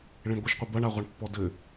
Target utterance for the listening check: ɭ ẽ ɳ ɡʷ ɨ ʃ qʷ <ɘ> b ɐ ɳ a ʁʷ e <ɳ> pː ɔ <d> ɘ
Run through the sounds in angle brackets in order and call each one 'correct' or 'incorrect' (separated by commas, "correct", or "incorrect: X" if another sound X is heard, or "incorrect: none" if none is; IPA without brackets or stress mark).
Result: correct, correct, correct